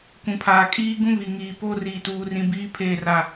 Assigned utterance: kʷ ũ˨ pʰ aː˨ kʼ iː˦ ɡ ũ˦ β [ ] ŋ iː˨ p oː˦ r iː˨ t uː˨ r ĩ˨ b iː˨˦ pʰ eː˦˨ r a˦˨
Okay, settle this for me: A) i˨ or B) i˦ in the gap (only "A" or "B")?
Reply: A